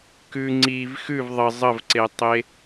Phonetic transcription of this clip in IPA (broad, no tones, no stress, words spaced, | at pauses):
kʉ ŋ͡ǀiv xʉv ðˤə zˤəvǀetˤe